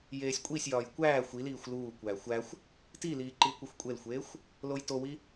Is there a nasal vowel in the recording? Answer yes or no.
no